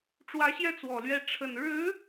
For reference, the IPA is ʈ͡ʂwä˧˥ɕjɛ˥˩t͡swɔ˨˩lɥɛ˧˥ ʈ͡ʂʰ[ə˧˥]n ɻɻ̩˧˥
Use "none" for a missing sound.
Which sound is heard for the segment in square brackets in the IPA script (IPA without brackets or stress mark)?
ə˨˩